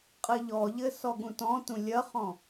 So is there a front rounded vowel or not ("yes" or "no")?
no